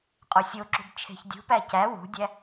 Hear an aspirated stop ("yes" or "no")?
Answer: yes